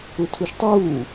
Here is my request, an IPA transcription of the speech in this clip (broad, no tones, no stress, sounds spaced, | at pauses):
u tʰ u ʃ tˤ uː